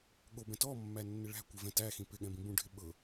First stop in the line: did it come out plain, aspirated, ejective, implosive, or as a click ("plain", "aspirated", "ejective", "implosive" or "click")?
implosive